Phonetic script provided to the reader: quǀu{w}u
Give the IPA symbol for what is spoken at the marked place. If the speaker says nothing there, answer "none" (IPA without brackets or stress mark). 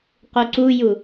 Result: j